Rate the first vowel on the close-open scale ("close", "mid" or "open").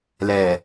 mid